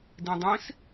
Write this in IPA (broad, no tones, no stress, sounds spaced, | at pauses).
d ĩ dˤ ĩ s